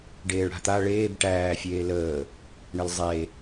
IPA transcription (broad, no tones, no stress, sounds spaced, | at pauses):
ɖ eː ɭ ɽ a̤ t̪ a ɭ eː b ʈ æː fʲ eː l əː | ɳ ə l zˤ e